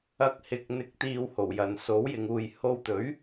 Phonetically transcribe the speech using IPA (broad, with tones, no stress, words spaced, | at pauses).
ɐ˧k̚ hɪ˧k̚n̪ɪ˧k̚t̪iː˧w ho˨˩wjɐ˨nso˨˥w jɪ˨ŋuː˨j ho˧wt̪ɵ˨˥ɥ